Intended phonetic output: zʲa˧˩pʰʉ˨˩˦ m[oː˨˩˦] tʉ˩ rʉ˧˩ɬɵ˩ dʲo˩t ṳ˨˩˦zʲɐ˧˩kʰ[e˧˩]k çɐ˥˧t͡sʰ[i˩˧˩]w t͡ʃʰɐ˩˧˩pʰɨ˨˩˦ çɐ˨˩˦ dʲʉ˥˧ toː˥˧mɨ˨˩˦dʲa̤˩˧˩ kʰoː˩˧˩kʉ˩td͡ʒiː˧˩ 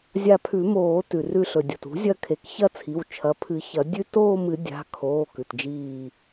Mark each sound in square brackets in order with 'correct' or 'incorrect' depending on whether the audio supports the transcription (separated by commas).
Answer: correct, incorrect, correct